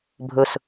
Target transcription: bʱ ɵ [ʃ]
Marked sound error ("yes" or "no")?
yes